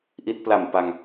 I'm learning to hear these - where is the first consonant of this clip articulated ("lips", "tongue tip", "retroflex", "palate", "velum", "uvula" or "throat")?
throat